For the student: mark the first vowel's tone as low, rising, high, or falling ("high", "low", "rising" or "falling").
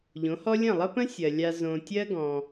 rising